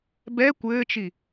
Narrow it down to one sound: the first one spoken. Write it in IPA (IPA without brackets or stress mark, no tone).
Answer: b